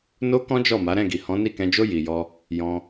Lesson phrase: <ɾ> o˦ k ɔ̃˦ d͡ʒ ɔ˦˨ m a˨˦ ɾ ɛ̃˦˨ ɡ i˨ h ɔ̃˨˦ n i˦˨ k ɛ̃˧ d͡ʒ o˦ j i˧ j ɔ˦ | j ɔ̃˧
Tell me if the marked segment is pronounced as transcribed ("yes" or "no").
no